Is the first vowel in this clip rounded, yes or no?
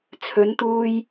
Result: yes